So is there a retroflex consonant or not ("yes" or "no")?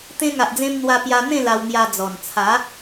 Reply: no